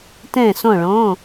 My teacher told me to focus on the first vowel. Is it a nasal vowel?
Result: yes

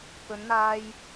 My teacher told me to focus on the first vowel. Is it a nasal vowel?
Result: no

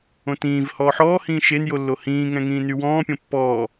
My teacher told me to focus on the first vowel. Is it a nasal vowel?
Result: yes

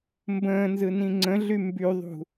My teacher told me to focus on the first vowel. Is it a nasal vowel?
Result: yes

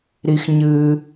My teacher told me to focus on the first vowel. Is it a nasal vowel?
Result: no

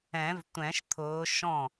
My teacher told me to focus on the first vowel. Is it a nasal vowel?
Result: yes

